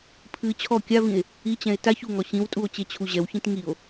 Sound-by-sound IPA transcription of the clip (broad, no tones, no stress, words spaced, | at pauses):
pʰɨ t͡ɕʰɔ kʲavĩe̯ | it͡ɕɛ̃e̯ taç uŋɔ ɕĩwtʼuo̯ t͡ɕet͡ɕʰuʑɛwçĩt ŋio̯